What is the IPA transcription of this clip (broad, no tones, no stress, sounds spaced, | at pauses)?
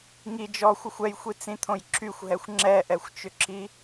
ŋ i d͡ʒ ɔ xʷ ʏ xʷ ɛ j xʷ i t͡s ĩ t̪ʰ õ j ǁʰ y xʷ ɦ ɛ xʷ ŋ͡ǁ ɛ ʔ ɛ xʷ t͡ʃ ʏ ǁ i